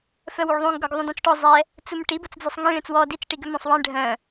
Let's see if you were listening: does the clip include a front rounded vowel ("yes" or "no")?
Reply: yes